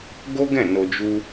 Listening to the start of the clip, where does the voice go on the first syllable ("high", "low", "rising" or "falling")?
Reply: high